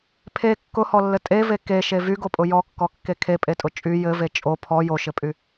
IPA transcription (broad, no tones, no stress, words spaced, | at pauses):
pʰe kːʊhɔlːɘ tʼeve keʃe vyɡopʼʊ jɔkːɔkːe kʰepʼetʼʊ t͡ʃʼy jɘve t͡ʃʼo pʰɔ joʃɘpʼy